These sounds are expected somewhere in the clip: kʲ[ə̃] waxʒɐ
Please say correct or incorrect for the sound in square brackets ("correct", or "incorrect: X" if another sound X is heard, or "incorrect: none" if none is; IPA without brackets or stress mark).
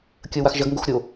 incorrect: ə